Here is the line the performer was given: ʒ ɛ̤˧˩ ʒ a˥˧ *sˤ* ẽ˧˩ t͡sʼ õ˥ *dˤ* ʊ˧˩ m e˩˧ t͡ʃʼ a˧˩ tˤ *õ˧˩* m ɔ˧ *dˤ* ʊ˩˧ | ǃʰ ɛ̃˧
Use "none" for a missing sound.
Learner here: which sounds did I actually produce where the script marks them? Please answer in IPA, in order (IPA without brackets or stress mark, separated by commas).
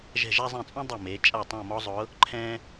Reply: zˤ, dˤ, õ˧˩, zˤ